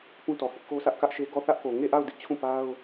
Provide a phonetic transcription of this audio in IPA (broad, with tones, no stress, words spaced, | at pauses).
pũ˦tɔ˨hɪ˦ʔ ko˦sä˦ʔkä˦ʔʃe˦ ɡɔ˦˨θä˦ʔko˨ ŋe˦˨ʔa˦˨ʊ̯ dɪ˦ʔt͡ɕʰũ˦˨ pa˦ʊ̯